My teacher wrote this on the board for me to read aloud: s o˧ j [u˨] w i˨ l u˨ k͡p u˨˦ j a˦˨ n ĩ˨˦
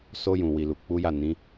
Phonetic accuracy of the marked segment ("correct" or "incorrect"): incorrect